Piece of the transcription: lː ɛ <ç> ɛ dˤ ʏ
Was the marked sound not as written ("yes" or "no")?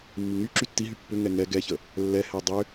yes